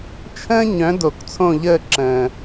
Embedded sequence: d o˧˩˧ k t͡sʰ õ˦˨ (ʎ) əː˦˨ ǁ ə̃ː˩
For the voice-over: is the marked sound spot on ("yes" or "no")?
yes